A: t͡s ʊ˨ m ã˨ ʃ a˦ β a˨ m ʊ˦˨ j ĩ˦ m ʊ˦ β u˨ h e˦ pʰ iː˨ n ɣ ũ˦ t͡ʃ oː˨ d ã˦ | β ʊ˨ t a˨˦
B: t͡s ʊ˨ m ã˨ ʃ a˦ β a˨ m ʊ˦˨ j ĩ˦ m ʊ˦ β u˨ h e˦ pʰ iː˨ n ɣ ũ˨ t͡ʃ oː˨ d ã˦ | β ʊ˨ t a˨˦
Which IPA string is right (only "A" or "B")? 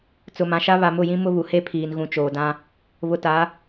B